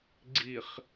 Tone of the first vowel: low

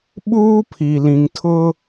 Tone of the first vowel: high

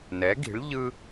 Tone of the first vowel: rising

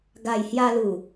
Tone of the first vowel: low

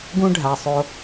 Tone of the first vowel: high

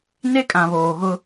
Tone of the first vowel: high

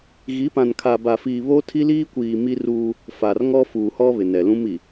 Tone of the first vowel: rising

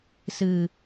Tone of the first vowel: low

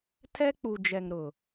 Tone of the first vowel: high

